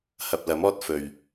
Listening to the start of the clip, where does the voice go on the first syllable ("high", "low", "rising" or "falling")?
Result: low